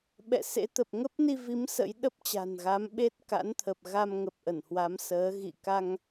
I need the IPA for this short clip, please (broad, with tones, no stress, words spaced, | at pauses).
ɓɛ̰˧˨sḛ˧˥t̪ə˨˩p̚ ŋə˦˥p̚ni˧vi˨˦m sə̰˧˥j ɗə˦˥p̚t͡ɕa̤˨˩nɣa˨˦m ɓe˦˥t̚ka̰˧˥nt̪ʰə˨˩p̚ ɣa˧mŋə˨˩p̚ ʔə˧˩nhwa˨˦m səː˨˦ ɣḭ˧˨ ka˧ŋ